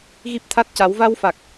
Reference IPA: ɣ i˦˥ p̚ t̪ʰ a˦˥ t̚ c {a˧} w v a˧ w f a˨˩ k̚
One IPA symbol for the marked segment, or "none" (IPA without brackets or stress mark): a˨˩˦